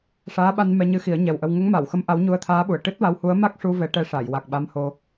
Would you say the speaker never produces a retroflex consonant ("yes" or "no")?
no